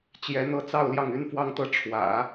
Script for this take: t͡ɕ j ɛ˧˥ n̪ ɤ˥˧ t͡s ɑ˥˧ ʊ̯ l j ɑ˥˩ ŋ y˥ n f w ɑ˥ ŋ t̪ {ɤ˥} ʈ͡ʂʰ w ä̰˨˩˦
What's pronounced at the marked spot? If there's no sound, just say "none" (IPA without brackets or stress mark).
ɤ˥